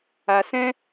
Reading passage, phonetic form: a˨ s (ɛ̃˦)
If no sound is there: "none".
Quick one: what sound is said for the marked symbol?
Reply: ɛ̃˦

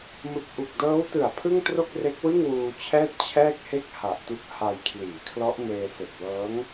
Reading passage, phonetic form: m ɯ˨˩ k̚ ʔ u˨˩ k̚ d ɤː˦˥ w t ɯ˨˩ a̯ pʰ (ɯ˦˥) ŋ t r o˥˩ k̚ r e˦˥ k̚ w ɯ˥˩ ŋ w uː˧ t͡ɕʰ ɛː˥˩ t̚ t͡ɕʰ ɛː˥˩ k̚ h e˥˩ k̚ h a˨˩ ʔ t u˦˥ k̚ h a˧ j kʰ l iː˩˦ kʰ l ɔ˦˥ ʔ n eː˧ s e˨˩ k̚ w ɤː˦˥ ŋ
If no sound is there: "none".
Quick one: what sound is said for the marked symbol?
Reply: ɯ˥˩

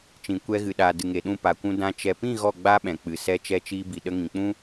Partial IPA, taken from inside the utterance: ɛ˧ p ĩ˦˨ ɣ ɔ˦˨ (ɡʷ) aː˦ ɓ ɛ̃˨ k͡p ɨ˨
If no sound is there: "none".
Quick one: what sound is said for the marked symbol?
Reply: ɡ͡b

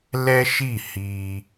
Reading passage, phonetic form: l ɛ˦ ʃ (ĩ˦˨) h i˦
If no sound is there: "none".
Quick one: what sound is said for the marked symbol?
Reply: i˦˨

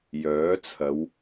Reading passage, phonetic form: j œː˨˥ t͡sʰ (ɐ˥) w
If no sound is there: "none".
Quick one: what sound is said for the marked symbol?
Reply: ɐ˨˧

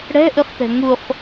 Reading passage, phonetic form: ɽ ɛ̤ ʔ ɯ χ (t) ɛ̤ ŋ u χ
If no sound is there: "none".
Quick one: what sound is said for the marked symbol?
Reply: t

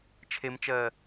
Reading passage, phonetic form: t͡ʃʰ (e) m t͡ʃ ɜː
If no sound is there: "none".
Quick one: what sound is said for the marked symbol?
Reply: e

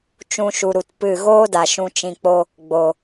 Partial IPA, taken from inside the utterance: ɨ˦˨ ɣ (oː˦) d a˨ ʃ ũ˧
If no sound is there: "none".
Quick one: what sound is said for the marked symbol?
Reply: oː˦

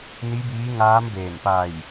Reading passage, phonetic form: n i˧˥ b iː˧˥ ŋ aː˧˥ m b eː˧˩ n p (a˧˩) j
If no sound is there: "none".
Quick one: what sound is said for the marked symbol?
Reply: a˧˩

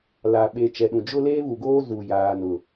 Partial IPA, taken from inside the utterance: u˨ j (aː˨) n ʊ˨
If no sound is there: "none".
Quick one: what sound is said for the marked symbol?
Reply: aː˨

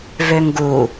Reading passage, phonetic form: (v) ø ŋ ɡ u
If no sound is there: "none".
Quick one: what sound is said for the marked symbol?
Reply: v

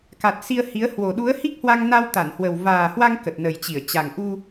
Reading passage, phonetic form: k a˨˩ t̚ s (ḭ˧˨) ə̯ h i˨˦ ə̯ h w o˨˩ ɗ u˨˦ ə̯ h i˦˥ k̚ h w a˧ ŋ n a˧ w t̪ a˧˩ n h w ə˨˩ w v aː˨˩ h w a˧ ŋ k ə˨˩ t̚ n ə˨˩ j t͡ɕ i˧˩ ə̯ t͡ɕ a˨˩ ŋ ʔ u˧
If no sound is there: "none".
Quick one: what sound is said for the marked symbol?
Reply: i˧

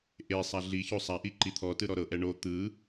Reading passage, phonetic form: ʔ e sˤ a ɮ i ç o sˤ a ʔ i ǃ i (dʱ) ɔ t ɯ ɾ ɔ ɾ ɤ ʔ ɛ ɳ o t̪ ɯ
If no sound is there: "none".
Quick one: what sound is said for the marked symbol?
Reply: t̪ʰ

